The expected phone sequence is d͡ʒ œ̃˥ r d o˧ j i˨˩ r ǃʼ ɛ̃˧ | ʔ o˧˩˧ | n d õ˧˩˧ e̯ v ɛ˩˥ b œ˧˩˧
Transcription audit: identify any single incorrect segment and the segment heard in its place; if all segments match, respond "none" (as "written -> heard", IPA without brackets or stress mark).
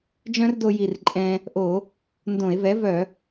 b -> v